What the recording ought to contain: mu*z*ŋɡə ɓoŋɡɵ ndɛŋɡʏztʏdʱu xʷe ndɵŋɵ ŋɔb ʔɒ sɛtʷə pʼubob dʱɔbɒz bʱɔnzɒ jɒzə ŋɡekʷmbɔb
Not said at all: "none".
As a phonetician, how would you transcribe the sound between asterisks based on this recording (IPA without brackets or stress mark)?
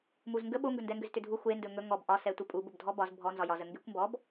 z